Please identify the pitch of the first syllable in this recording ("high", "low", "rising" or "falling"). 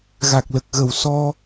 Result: low